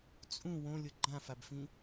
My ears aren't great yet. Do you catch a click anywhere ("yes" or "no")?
yes